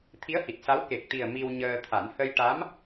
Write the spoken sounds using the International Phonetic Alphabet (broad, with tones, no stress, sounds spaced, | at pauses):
t̪ʰ i˧˥ ə̯ h i˨˩ t̚ s a˧˥ w k e˨˩ k̚ t̪ i˨˩ ə̯ m i˧ w ɲ əː˧ t̪ʰ a˨˩˦ n h ə˧ j ʈ a˧˥ m